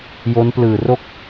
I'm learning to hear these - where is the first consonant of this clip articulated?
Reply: palate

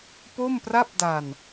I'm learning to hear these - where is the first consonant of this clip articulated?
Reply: lips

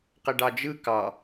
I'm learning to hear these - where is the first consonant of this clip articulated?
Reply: uvula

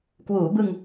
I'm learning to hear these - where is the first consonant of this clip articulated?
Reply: velum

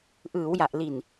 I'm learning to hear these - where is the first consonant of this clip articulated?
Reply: throat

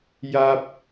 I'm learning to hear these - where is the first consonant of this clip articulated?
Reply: palate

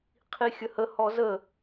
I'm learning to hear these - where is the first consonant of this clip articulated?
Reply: uvula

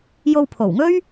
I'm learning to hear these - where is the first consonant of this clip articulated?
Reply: palate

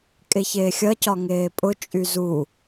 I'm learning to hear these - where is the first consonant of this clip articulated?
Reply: velum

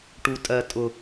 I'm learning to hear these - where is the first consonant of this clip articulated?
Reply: retroflex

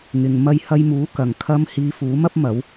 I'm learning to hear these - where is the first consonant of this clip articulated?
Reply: velum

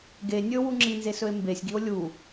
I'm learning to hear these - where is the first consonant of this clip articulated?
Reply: velum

